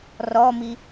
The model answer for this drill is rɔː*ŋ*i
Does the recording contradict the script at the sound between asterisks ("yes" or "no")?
yes